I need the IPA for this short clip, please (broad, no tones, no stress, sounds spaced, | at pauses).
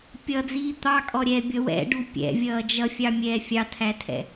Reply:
pʲ ʌ d͡z iː t̪ ɑ kʼ ɔ ɾʲ ɛː bʲ ʌ w ɛ̰ ɖ u pʲ ɛ̰ vʲ ʌː d͡ʒ ʌ fʲ ɑ mʲ ɛː fʲ ɑ tʰ æ tʰ ɛ̰